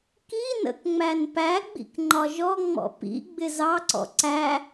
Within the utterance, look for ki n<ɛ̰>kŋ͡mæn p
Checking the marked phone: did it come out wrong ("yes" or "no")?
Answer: yes